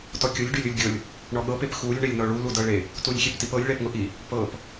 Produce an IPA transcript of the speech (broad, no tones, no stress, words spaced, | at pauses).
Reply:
tɔkʲʊlʲ ɖylʲʊlʲɡʲɤlʲ | ɳɔɠɤp epxulʲ ɳelʲnɔɭu ludɤɭe | tulʲxʲeptipɤlʲ ɭɛpŋʊʔi | pɤp